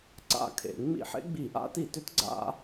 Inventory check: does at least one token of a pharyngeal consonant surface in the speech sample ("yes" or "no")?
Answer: yes